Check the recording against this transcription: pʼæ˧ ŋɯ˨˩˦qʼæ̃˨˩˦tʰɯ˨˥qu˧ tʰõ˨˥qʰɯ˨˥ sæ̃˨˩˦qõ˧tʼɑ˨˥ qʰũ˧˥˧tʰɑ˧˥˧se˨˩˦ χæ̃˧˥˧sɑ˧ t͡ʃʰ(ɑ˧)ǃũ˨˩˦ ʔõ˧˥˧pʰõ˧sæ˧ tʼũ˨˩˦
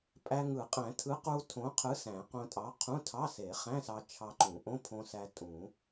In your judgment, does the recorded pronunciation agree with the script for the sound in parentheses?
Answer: yes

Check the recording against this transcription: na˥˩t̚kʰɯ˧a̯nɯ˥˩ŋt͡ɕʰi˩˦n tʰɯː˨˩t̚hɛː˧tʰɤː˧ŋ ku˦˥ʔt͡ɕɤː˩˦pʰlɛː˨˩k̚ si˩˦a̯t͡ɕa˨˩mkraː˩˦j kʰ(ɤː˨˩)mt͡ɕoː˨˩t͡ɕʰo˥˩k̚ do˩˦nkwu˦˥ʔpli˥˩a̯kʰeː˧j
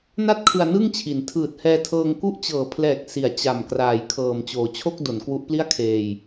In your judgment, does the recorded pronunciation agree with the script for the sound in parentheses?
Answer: yes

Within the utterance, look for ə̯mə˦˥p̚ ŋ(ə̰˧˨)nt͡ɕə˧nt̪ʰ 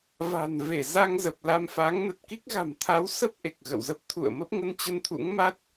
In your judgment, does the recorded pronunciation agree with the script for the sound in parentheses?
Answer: no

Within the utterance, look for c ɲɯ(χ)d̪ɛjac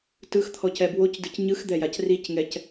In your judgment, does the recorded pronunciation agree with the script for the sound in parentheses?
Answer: no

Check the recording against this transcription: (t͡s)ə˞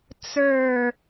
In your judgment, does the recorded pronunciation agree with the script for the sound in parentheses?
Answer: yes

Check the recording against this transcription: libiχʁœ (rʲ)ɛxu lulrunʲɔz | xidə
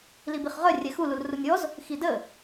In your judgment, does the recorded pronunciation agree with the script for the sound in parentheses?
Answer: yes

